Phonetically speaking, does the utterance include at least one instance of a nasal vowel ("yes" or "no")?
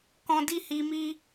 yes